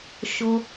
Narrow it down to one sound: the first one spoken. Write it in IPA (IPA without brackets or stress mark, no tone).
ʃ